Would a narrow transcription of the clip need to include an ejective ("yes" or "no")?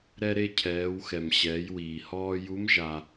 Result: no